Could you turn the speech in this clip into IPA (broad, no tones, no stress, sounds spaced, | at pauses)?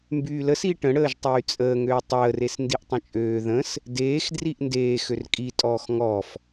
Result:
m b yː l ə s i ʈ ə̃ ɽ əː ʒ tˤ yː t͡sʼ əː ŋ øː tˤ əː r e s n d i ʔ tˤ ə̃ t͡ʃʼ øː ð ə̃ s | d eː x d r i ʔ n d eː x ø r kʼ i tʼ ɔː x ŋ ɔː f